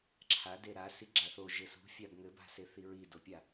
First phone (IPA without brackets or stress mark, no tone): ǁʰ